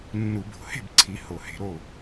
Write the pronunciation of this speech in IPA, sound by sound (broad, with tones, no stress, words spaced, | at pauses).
nːu˧˩˧bo̤˧˩˧he̤˥˨bǀʰi˨˦ ho˧˩˧he̤˨˦ɾo˥˨